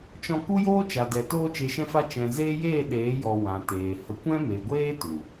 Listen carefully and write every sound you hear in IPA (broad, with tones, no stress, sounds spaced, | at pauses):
t͡ʃ ɔ̃˧ k u˦ j oː˦ t͡ʃ a˨ d ɛ˨ t oː˧ t͡ʃ e˨ ʃ ɛ̃˧ f a˧ t͡ʃ ɛ̃˨ z eː˦ j eː˦˨ ɗ eː˨˦ j ɔ˨ w ã˨ t eː˨ h ə˧ kʷ ɛ̃˦ m e˨ ɡʷ eː˦ t u˨